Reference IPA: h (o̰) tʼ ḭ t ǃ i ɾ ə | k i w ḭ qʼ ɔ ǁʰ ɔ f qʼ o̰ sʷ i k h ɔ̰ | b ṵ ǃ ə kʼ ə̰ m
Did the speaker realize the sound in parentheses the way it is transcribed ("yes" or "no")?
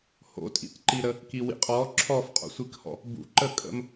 yes